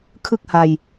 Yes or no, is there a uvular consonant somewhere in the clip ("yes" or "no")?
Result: no